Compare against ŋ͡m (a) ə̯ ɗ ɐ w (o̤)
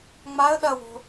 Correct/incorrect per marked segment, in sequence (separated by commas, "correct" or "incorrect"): correct, correct